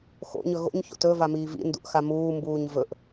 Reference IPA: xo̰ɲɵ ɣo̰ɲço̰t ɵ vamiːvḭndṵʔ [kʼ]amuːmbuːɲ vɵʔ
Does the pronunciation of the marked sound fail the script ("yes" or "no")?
yes